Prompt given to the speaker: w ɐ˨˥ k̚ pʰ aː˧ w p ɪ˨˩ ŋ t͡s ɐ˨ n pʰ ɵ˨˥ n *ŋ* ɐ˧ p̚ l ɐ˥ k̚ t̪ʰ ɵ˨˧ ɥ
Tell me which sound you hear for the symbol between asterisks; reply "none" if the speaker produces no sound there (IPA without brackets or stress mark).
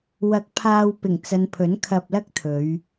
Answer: kʰ